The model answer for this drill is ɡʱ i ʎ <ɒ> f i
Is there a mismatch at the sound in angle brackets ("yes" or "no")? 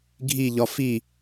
no